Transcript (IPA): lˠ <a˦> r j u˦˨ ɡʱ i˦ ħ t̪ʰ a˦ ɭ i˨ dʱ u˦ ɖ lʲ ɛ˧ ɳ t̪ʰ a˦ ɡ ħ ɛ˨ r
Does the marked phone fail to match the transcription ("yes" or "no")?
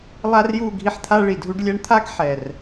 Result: no